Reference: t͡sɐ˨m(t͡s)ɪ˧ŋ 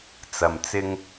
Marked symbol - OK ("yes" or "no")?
yes